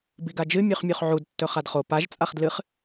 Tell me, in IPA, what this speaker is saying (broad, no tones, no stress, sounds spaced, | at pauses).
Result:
b i ɡ a d͡ʒ ɨ mʲ ʉ χ mʲ o χ ʕ u d tː ɵ χ a d χ o p a ʒ t͡sʼ a χ d l ɨ χ